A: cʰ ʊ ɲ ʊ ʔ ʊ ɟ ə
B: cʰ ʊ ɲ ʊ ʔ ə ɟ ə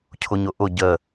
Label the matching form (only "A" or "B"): A